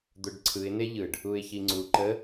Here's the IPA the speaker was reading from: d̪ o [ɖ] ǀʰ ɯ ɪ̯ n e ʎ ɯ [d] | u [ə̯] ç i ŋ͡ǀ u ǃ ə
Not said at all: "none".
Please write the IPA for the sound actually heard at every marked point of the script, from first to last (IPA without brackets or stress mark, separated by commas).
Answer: ɖ, ɖ, ɪ̯